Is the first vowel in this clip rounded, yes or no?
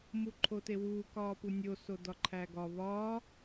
yes